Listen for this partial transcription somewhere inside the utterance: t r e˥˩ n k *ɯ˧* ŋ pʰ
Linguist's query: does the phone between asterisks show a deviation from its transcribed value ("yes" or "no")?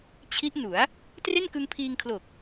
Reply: no